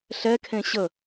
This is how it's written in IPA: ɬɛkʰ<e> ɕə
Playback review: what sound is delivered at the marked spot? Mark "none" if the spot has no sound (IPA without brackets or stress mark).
ẽ